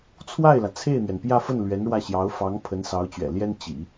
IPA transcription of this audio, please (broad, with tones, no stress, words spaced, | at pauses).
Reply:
t͡sʰwa˥˩ɪ̯lä˩ t͡sʰe˥˩ɪ̯n̪ɥɛ˩npjä˥˧fə˥˩n lɥɛ˧˥nɻwä˥˩ ɕjɑ˧˥ʊ̯fɑ˧˥ŋ pʰə˧˥nsɑ˧˥ʊ̯t͡ɕɥɛ̰˨˩ljɛ˥n t͡ɕḭ˨˩˦